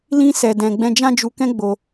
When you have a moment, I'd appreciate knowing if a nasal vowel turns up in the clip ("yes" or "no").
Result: yes